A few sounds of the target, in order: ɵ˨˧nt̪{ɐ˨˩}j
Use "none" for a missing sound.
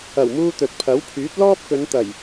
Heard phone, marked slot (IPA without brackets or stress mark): ɐ˨˩